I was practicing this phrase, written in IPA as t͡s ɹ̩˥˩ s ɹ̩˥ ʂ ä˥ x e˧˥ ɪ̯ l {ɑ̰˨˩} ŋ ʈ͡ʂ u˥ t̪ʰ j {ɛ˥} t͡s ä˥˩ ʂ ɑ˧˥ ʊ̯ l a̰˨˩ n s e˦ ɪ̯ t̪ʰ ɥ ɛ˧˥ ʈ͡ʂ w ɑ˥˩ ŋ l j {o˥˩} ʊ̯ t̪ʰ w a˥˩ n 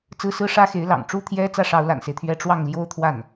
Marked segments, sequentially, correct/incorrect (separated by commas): correct, correct, incorrect